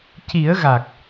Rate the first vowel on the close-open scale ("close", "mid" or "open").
close